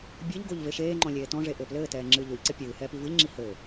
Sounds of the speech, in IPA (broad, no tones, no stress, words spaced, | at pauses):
bʲɘʎɡoʎ veʃeːŋ͡ǃɔ̃ lʲeːtɔ̃ʐe ʔɘːplɘːtɛː ŋ͡ǁɨːʎoʎǀɘ pʲɨːhɛːp ivɨʎŋ͡ǁi hɘ